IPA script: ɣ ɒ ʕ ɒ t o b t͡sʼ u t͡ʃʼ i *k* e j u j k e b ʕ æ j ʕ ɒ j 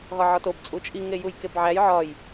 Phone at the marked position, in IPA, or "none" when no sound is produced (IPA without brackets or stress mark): ŋ